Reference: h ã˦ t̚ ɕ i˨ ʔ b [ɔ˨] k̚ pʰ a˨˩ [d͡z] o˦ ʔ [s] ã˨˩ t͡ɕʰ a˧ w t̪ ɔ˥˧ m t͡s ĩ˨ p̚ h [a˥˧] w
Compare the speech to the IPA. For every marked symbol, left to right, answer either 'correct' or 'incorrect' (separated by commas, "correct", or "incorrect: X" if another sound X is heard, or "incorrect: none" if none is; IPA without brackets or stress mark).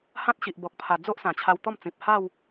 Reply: correct, correct, correct, correct